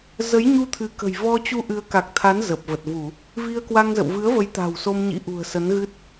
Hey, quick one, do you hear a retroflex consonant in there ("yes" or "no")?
no